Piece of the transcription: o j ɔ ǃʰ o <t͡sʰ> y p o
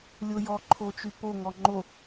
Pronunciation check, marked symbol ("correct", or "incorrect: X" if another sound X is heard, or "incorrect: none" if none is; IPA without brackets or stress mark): incorrect: t͡ʃ